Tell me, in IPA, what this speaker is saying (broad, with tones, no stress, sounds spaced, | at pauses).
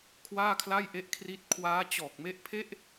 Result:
kʰ w aː˥˩ kʰ l a˥˩ j ʔ e˦˥ ʔ kʰ r i˦˥ t̚ kʰ w aː˦˥ t͡ɕ ɔː˨˩ k̚ m e˦˥ ʔ pʰ e˥˩ ʔ